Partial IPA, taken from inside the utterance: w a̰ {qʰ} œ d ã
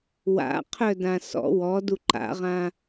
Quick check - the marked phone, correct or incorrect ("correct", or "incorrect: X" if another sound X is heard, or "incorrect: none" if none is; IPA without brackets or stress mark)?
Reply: correct